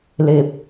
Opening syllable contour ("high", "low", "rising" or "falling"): low